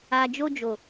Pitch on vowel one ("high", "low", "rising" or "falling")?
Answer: low